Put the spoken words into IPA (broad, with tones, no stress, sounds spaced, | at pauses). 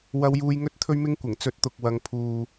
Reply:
w ɐ˧ w j uː˧ j ŋ ɵ˥ t̚ t̪ʰ ɵ˥ ɥ m ɪ˥ ŋ kʷ ɪ˨˩ ŋ t͡s ɵ˧ t̚ t̪ ʊ˨ k̚ w ɐ˨˧ ŋ pʰ uː˨